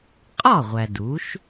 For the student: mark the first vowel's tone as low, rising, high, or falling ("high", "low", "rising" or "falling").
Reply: falling